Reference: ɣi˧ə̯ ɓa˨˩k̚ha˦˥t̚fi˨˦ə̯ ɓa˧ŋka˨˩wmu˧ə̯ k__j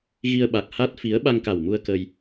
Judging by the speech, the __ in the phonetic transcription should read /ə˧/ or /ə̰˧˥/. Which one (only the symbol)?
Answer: ə˧